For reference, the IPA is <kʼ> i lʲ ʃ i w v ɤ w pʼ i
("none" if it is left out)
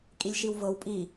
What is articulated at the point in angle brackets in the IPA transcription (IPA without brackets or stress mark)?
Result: kʼ